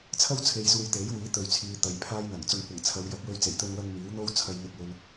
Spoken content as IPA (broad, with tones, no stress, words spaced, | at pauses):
t͡sʰɐ˥wt͡sʰe˨jsuː˨j t̪e˨˥jwiː˨˥ t̪ɵ˨ɥt͡sʰiː˨ t̪ɐ˨˧jpʰaː˥jn̪ɐ˨˩ŋ t͡sʊ˨ŋkʷɐ˨˩ŋ t͡sʰɐ˨˧wjɐ˨˥p̚wɵ˧ɥ t͡se˨˩jt̪ɵ˧nwɐ˧ŋ miː˨˥wn̪o˥w t͡sʰɐ˧j n̪ɪ˧k̚wɵ˧n